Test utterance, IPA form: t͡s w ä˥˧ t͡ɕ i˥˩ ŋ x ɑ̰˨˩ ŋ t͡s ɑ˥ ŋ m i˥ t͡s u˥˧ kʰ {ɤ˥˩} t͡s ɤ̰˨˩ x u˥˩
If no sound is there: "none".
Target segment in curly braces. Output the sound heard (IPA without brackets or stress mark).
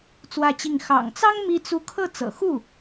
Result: ɤ˥˩